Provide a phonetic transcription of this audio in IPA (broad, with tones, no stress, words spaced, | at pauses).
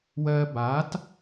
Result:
wɜː˧ baː˨˦t